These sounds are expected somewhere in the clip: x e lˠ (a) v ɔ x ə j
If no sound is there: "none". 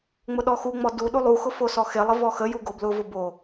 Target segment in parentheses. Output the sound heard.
ə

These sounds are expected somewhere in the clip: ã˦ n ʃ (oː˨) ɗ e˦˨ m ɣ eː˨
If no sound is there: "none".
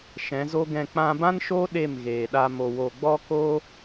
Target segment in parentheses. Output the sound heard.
oː˦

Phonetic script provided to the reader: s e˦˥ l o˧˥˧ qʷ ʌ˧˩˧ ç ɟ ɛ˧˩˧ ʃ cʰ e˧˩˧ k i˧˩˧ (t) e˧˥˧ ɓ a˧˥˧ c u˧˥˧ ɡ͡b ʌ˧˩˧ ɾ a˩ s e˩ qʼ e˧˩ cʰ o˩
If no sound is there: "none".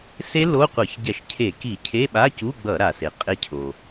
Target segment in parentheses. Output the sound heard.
cʰ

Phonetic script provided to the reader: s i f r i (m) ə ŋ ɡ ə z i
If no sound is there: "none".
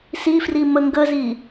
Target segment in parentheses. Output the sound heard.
m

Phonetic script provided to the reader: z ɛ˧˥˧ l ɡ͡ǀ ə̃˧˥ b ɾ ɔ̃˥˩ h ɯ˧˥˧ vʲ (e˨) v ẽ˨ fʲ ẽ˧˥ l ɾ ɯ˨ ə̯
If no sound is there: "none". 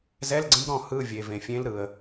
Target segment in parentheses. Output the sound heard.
e˨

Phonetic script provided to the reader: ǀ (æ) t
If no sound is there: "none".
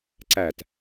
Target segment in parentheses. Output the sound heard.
æ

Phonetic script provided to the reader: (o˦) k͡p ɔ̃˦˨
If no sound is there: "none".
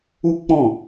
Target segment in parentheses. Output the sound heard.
u˦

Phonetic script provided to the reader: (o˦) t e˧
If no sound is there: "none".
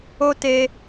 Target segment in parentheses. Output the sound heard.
o˦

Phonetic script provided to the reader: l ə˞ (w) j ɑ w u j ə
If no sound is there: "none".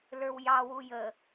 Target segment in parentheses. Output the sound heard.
w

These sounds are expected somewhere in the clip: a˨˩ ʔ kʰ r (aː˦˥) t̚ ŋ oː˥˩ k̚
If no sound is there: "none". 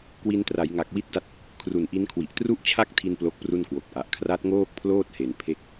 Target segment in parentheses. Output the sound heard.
a˦˥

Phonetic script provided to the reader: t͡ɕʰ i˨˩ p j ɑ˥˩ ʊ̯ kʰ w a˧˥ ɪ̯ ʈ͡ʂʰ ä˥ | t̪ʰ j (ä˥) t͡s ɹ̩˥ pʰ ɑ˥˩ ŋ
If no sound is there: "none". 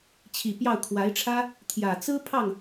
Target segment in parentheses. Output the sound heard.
ä˨˩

